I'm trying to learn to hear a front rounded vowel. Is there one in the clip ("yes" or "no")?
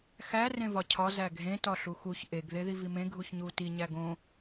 no